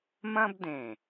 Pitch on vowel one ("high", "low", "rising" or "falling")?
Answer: high